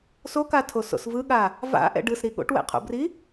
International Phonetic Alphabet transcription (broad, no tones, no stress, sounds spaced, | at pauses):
s o k a tʰ o s o̰ s v ɯ ɠ a | v a̰ ʔ ɛ̰ ɖ ɯ s ɾ i ɠ o̰ ʈ w ɛ̰ qʰ o̰ b r i